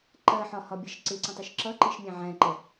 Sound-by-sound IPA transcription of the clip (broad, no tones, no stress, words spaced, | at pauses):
ǃɜħɒhɒbʲɛʃ ǀɪǀə̃tˤuʃ ǁʌǃiʃmʲæ̃ ʕæ̃ǃɛ